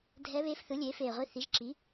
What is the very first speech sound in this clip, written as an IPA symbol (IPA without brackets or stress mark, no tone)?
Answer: dʱ